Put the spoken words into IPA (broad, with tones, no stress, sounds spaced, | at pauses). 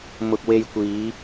m ʊ˧ k̚ w e˧ j kʷ iː˨˧